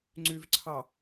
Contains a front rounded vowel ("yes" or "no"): yes